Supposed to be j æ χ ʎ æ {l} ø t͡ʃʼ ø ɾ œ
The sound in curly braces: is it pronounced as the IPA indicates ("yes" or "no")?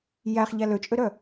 yes